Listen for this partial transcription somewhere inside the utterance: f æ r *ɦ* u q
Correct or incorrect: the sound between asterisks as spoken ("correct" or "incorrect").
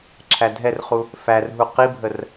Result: correct